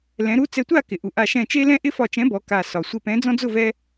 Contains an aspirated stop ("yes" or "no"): no